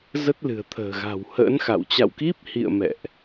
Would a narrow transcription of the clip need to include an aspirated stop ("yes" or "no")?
yes